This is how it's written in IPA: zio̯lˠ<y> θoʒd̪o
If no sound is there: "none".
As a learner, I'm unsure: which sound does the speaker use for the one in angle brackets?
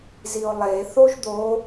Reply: e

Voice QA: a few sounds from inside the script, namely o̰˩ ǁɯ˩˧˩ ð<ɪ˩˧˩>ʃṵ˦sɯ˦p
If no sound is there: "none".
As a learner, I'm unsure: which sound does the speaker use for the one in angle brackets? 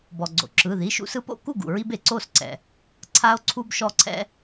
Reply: i˩˧˩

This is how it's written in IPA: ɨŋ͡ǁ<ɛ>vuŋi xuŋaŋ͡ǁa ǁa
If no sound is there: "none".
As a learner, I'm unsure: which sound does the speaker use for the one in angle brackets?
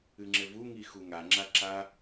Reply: ɘ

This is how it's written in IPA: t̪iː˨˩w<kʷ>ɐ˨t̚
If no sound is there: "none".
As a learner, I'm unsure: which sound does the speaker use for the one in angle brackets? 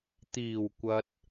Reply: kʷ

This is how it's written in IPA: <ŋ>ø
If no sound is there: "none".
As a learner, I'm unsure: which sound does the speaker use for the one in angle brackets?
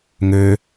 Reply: ŋ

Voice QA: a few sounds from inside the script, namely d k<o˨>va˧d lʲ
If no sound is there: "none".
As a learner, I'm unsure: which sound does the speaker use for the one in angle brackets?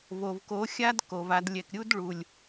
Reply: o˨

